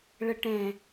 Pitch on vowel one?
low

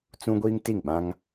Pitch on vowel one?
high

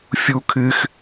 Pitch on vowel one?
high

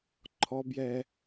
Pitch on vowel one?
high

